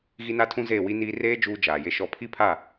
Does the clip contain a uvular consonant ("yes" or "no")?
no